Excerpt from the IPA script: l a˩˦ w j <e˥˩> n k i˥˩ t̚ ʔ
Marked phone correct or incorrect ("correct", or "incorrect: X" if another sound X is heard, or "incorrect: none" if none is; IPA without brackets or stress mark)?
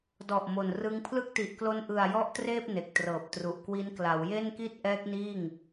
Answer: correct